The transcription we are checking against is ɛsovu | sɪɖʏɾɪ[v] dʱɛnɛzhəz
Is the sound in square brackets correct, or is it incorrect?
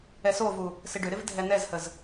correct